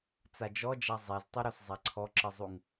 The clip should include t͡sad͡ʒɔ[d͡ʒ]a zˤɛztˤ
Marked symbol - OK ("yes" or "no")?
yes